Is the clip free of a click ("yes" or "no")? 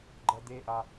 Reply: no